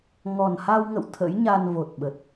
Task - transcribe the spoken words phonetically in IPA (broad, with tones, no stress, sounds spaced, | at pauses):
ŋ ɔ˨˩ n h a˧ w ŋ ə̰˧˨ w t̪ʰ ə̰˧˥ j ɲ a˧ n v o˨˩ t̚ ɓ ə˨˩ t̚